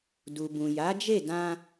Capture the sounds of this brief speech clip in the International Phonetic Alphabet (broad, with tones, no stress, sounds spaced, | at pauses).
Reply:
d u˨ b ũ˨ j a˨˦ d͡ʒ e˦˨ d ã˧